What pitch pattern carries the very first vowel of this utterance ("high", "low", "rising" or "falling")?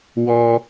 high